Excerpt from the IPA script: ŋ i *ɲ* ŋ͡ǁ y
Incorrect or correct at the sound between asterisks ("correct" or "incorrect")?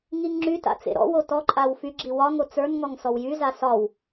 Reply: incorrect